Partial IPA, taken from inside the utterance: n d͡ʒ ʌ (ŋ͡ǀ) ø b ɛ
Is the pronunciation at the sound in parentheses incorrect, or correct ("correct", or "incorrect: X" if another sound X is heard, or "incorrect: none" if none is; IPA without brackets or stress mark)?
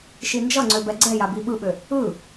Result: correct